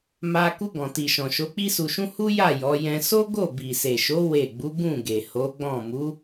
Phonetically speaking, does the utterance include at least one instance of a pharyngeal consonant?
no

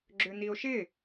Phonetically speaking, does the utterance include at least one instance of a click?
yes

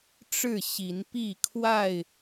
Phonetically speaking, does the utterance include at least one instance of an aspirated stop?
yes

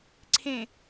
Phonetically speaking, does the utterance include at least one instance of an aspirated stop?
yes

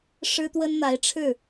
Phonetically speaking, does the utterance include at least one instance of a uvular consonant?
no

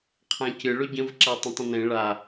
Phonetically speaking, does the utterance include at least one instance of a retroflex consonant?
yes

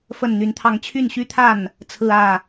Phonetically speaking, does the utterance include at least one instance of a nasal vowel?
no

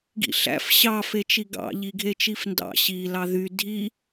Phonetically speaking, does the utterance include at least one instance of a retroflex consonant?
no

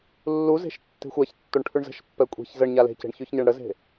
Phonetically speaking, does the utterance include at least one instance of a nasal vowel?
no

